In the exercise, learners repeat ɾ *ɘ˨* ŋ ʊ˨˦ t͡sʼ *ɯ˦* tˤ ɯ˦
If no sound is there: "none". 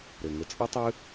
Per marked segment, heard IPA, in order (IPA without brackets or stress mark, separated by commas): ɘ˨, ɯ˦